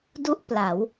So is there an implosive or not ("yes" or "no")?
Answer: no